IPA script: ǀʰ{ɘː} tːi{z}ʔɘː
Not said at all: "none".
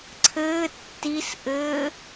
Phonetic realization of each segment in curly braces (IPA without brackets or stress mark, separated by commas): ɘː, s